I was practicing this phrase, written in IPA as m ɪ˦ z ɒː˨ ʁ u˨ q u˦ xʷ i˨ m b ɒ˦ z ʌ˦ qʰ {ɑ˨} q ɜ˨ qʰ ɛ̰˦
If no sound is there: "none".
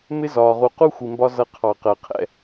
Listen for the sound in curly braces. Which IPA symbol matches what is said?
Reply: ɑ˨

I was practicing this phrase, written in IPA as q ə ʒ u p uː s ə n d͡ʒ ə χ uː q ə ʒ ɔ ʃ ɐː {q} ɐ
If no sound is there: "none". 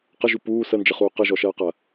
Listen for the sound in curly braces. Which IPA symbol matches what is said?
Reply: q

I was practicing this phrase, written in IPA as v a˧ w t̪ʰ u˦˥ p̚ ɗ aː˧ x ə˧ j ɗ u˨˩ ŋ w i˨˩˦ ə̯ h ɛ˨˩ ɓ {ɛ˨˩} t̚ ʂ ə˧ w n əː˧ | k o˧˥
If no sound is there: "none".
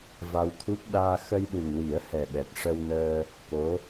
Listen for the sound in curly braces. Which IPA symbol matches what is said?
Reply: ɛ˨˩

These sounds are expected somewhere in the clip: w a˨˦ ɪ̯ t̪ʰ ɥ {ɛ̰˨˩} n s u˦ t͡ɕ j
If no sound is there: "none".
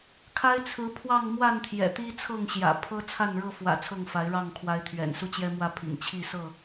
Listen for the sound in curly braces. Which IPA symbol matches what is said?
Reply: ɛ̰˨˩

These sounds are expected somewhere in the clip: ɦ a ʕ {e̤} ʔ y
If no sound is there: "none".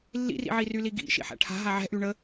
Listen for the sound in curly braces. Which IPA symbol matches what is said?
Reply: ɛ̤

